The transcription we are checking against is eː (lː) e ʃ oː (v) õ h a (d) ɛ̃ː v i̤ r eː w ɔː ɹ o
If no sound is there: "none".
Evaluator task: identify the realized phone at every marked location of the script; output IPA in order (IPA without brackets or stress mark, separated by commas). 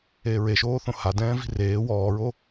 ɹ, θ, d